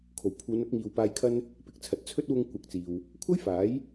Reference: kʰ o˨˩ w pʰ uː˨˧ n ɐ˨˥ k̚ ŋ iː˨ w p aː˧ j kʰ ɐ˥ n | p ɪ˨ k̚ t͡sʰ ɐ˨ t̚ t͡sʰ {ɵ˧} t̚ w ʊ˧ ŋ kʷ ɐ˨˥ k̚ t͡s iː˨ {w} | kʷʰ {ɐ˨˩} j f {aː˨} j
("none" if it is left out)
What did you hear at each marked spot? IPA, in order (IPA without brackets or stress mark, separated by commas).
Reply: ɵ˥, w, ɐ˥, aː˨˥